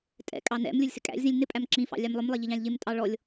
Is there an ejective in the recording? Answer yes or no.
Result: yes